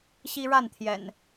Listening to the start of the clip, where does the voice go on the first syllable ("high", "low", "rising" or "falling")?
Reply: high